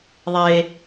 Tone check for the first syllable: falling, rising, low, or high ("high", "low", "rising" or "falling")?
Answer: high